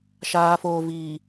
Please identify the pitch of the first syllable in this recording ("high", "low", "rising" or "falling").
low